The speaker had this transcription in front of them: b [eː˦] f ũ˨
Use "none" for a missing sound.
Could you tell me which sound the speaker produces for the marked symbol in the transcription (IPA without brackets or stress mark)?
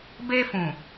eː˦